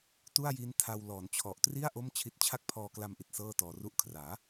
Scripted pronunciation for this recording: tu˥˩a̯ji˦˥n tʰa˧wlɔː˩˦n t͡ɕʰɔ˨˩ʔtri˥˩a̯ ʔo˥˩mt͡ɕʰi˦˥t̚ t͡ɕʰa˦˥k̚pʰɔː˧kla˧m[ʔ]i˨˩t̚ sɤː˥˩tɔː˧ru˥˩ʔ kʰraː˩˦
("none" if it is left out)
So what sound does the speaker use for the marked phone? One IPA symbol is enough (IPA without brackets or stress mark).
ʔ